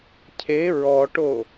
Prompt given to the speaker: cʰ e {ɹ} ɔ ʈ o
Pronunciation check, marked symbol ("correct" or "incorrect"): correct